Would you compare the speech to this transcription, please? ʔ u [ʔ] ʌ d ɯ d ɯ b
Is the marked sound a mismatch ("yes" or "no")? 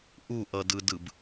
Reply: no